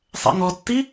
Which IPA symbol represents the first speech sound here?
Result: sˤ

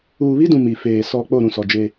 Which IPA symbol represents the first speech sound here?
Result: uː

